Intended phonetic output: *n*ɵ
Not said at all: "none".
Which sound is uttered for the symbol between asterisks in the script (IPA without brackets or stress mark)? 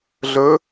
ɮ